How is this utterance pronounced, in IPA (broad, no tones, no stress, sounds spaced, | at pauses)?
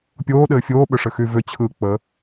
pʲ oː ɗ ɘː fʲ oː ɓ ʏ ʂ ɘ x y v ʏ t͡ɕʰ ɯː k͡p ə